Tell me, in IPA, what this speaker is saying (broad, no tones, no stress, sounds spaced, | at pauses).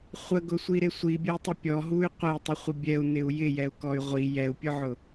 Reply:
χʷ ə ɡ ʊ sʷ i ɾ ɪ sʷ i bʲ ə i̯ tˤ ɪ pʲ ɔ ɦ u y̯ qʷ ə j tˤ ʊ χʷ ɪ bʲ ɛ u̯ n ɪ u̯ j ɪ j ɛ u̯ k ɔ y̯ ʁʷ i j ɛ u̯ pʲ ʊ ʕ ʊ